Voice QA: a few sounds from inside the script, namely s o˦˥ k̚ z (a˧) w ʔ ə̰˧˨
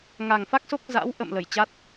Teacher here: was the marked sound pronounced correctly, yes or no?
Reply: no